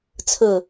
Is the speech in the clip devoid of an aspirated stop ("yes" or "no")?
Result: no